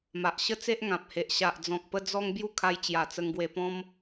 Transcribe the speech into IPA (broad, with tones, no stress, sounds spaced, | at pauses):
m a˨ ʔ ɕ ə˦ t͡s e˦ ʔ ŋ ã˨ p̚ h e˨ ʔ ɕ a˨ ʔ d͡z ɔ̃˨ k̚ p ə˦ d͡z ɔ˦ ŋ b j u˥˧ kʰ a˧ j t͡ɕ j a˨˩ t͡s ə˧ ŋ ɡ w e˧ p ɔ̃˦ m